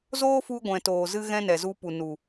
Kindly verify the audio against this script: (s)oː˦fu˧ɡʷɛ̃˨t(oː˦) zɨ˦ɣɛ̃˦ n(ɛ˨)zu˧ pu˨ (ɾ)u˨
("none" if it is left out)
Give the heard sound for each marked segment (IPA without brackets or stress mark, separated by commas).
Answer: z, oː˨, ɛ˨, n